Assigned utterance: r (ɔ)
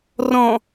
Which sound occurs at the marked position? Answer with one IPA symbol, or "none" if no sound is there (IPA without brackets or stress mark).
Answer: ɔ̃